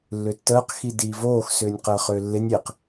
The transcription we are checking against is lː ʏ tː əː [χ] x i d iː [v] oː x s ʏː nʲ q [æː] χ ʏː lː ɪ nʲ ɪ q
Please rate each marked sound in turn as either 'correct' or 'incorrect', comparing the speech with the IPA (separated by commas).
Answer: incorrect, correct, incorrect